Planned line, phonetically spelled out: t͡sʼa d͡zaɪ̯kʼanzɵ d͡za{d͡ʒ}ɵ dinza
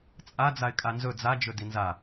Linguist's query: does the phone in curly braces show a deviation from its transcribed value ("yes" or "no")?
no